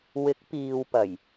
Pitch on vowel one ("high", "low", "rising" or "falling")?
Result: rising